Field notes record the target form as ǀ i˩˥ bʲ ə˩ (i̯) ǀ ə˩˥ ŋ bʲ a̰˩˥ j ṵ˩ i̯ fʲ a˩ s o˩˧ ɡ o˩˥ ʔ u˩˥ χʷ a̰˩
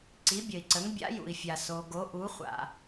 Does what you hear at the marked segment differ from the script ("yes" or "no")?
no